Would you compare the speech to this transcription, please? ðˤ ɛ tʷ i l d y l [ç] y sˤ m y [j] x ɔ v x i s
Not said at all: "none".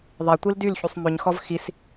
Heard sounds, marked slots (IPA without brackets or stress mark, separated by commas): ç, ɲ